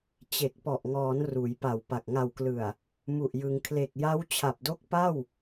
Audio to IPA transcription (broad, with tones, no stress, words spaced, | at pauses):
t͡ɕe˨˩k̚pɔ˨˩ʔŋɔː˩˦n ruː˩˦jpa˨˩wpa˨˩k̚ ŋa˨˩wklɯ˨˩a̯ | mu˨˩ʔjɯ˩˦ŋ kʰle˨˩k̚ja˦˥wt͡ɕʰa˨˩p̚do˦˥k̚ pa˥˩w